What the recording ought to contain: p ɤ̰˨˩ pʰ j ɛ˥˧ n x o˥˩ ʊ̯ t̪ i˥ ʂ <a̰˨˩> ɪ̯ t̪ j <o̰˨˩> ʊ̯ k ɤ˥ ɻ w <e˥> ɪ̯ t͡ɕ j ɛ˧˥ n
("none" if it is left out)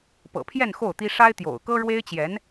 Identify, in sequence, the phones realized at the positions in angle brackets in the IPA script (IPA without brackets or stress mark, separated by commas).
a˥, o̰˨˩, e˥